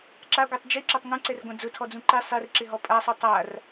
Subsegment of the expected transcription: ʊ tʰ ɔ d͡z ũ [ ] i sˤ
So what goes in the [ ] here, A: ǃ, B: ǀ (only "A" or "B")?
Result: A